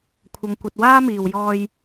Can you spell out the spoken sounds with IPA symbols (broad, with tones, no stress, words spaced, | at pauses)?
kʷʰɐ˨ŋkʷɐ˨t̚ waː˥miː˨w jɔː˧j